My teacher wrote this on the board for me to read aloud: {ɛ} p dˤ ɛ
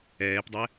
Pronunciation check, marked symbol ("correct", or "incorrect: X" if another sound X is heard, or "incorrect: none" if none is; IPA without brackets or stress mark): incorrect: ɛː